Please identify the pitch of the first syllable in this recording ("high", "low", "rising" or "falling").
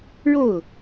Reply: falling